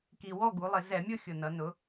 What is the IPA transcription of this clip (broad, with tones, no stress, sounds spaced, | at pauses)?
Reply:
k i˨˩ w ɔ˥˨ ɡ u˩˧ lˠ ɪ˧˩˧ z ɛ˧˩˧ mʲ ʊ˥˨ xʲ ʊ˨˩ n ʌ˩˧ n ʊ˩˧